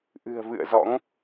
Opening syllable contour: low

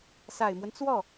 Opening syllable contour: low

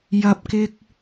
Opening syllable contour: low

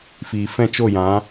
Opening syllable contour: low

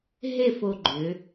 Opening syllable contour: falling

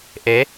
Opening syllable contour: rising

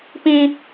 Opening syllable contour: high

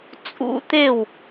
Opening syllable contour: rising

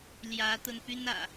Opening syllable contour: rising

